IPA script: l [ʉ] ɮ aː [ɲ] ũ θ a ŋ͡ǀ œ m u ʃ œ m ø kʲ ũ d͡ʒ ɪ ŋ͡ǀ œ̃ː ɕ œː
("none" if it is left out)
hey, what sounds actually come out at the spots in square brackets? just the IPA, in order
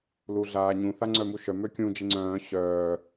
u, ɲ

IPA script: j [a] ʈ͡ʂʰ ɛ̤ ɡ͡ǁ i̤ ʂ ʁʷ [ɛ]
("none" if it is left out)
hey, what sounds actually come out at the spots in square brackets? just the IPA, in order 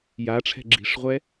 a, ɛ

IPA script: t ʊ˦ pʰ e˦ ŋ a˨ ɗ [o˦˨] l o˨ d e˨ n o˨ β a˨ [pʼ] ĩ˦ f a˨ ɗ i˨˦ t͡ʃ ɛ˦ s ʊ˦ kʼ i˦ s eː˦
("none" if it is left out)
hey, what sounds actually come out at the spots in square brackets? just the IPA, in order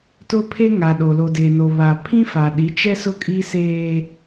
o˨, pʰ

